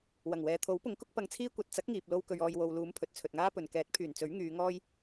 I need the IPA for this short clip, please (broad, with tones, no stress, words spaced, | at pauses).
wɐ˨˩ŋwɛː˨t̪ʰo˨˥wpʊ˨˥ŋ kʊ˥k̚pɐ˧ŋt͡sʰiː˥ kʷɐ˨t̚t͡sɐ˨˥k̚ ŋiː˧p̚lo˥wkɵ˧ɥ ɔː˨j wo˨w luː˨˧mpʰɵ˨t̚ t͡sʰɵ˨t̚ŋaː˥pɵ˨n kɛː˨˥t̚pʰyː˨˩nt͡sɵ˨˥ɥ ŋyː˨˧ ŋɔː˥j